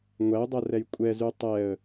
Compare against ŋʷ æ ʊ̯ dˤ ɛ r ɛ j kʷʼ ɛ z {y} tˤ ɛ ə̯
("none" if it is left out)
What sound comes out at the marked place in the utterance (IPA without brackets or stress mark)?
y